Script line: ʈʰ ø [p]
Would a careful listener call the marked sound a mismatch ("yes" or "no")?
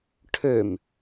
yes